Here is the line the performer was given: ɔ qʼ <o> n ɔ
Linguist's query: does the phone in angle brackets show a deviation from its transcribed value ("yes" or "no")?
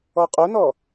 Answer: no